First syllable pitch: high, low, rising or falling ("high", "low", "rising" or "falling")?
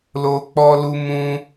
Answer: high